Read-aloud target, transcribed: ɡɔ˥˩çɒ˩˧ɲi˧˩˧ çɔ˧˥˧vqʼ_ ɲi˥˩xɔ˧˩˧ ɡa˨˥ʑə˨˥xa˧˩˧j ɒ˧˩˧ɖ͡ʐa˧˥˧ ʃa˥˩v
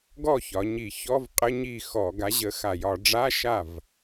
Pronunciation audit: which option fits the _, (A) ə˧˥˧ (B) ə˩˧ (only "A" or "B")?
A